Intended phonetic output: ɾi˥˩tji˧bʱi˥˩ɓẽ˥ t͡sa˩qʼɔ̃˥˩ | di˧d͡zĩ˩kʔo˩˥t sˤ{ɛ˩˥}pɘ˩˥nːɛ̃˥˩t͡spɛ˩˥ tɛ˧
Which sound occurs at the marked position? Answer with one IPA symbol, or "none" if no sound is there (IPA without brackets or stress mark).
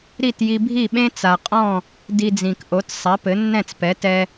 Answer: ɛ˩˥